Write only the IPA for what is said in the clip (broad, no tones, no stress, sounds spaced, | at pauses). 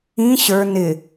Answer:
ĩ ɕ ə˞ n ɪ